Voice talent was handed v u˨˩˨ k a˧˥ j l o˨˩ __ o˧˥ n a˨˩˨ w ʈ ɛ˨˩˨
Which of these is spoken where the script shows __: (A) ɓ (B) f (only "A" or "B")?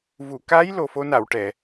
B